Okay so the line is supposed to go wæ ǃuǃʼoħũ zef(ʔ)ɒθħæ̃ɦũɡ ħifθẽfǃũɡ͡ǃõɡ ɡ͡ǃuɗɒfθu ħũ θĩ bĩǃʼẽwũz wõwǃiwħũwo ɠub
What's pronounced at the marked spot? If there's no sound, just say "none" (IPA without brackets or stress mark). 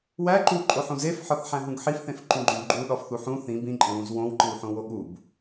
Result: ħ